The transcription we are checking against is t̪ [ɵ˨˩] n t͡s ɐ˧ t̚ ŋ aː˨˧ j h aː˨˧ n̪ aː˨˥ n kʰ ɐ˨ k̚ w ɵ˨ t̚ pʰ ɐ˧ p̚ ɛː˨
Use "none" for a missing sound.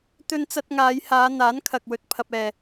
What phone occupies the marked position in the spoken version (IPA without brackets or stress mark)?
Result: ɵ˧